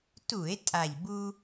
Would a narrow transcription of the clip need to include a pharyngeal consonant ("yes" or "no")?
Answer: no